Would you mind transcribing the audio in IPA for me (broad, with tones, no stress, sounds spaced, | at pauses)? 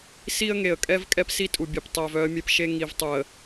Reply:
s i˦ ə̯ ŋ e˨ ə̯ kʼ ɛ˦ v kʼ ɛ˦ p s i˦ tʼ u˨ bʲ e˨ p tˤ œ˨ v œ˦ ə̯ mʲ ɛ˦ p ʃ e˦ ŋ i˨ v tˤ u˨ ə̯